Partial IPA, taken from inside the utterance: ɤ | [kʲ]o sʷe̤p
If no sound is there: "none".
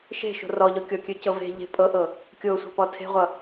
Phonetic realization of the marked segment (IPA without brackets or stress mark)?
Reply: kʲ